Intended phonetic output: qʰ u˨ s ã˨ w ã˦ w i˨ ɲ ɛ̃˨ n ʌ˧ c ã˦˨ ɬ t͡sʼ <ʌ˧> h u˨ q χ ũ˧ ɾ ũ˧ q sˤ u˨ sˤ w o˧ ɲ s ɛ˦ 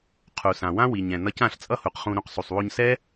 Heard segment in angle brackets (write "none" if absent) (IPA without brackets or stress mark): ʌ˦